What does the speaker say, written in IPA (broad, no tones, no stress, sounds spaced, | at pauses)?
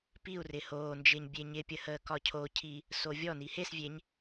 p i u̯ r ɪ h oː n d͡ʒ ɪː ɲ bʲ e ɲ ɪ pʲ ə h əː k ɒ cʰ o cʰ iː | s o vʲ ɔ n i h e s vʲ e ɲ